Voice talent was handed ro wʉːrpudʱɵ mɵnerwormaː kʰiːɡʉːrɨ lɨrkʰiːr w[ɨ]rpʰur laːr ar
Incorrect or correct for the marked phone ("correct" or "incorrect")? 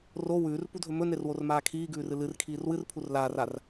correct